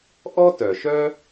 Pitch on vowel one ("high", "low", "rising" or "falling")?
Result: high